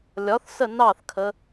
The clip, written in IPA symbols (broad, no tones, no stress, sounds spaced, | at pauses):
lʲ ɒ θ s ə n ɑ θ kʰ ə